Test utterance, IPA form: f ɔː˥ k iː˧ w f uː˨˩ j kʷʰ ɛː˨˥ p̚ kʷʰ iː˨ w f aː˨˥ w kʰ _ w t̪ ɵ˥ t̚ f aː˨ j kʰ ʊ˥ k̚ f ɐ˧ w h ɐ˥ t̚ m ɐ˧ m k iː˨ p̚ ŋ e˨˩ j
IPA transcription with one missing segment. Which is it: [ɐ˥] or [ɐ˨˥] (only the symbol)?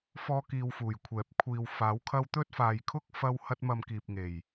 ɐ˥